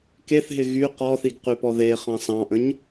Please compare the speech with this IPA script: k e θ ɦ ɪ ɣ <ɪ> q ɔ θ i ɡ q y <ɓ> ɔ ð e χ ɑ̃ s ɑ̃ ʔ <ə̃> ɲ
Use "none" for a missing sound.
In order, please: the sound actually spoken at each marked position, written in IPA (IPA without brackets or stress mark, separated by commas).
y, p, ə̃